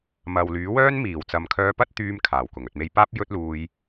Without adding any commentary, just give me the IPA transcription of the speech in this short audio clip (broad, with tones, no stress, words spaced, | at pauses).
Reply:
mɐ˨w lyː˨˥wœː˥nmiː˨˩w t͡sɐ˨˧mkʰœː˧pɐ˥t̚ t̪yː˥mkʰaː˨˩wkʊ˨˩ŋ ɵ˨t̚me˧jpaː˥p̚ jɵ˥t̚luː˧j